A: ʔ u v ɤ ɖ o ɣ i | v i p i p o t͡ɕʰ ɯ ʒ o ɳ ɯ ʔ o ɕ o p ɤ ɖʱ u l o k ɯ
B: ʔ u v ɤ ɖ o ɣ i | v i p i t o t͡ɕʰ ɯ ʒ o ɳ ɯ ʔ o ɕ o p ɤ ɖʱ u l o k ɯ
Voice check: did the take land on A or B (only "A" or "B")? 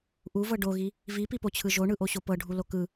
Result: A